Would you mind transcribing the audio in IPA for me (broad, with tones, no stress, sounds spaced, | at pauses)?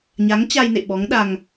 ɲ a˨˦ ŋ t͡ɕ a˧ j n ḛ˧˨ ɓ ɔ˨˦ ŋ ɗ a˧ ŋ